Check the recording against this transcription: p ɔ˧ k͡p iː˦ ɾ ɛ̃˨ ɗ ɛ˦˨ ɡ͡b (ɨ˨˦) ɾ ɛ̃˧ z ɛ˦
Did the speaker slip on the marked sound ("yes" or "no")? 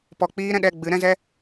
no